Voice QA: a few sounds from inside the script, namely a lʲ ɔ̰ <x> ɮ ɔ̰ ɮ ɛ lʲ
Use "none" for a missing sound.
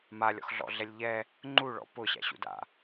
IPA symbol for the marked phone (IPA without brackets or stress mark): x